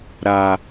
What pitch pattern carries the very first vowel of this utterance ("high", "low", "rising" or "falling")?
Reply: low